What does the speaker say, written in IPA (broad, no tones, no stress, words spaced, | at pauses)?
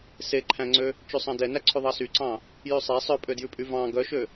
seǃʰæ̃ŋ͡ǀø | t͡ʃʉsˤɑ̃dɛnæ ǀʰʉðˤɑsyǀɑ̃ | jʉsˤe sˤœpʼødjʉpʼy vɑ̃ ɡœʃø